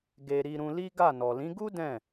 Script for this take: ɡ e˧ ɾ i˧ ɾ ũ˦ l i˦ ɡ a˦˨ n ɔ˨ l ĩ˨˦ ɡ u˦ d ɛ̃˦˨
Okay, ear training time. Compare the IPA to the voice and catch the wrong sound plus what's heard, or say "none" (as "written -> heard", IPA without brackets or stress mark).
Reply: ũ˦ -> ũ˧